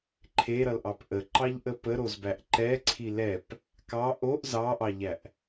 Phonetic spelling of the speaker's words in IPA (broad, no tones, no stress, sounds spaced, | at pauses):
ǃʰ e ɾ ʌ l ʔ ɑ p ʔ ə ǃ ɑ ʎ ʔ ə p ə ɾ o z b æ ʔ ǃ ɛ ǀʰ i l ɛ p | k ɑ ʔ o ʔ z ɑ ʔ ɑ ʎ æ ʔ